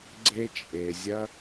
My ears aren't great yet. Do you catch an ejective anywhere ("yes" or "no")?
yes